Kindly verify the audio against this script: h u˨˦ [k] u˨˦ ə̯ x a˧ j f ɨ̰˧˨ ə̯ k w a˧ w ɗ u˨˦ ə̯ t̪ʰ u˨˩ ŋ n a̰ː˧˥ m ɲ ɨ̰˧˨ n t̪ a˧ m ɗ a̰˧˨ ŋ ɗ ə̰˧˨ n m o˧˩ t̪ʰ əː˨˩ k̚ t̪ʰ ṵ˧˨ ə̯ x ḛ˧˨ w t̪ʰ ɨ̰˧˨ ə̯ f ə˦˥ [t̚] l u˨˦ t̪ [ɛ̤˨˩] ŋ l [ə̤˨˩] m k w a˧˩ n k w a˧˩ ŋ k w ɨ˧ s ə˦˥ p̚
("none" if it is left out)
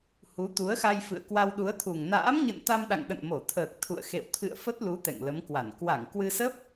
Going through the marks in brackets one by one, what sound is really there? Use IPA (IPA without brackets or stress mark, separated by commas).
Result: t̪, t̚, ɛ̰˧˨, ə˨˦